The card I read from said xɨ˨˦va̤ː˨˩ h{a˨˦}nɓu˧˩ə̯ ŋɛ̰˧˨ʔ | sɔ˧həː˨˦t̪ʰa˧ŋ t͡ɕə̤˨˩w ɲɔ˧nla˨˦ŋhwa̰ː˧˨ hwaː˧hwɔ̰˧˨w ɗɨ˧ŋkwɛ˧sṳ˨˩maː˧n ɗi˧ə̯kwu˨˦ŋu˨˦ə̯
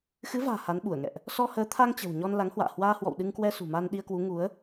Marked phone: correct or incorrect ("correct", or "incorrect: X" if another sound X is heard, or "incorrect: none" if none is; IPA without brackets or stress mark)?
correct